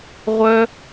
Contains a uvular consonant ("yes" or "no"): yes